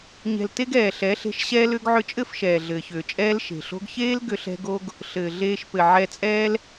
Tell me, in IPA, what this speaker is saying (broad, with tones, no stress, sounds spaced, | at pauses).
ɲ ɛ̤˨ l t e˧ ɡ ɛː˨ ɬ ɛ˨˦ ɬ e̤˧ ʃ ɕ ɛː˧ l ʏː˧ ɡ ʕ ʏ˧ t͡ʃʼ ɘ˦˨ f ʃ ɛː˨ ɮ ɘː˨ ç ʏː˨ t͡ʃʼ ɛː˦ l ʃ e̤˨ ɬ o̤˦ ɡ ç eː˦ l ɡ ʏ˧ ɬ ɛ̤˧ ɡ o˦ ɡ | ɬ ɘː˨ ɮ eː˧ ʃ p ɘ˨ ʕ ɛ˧ t͡sʼ ɛː˦ l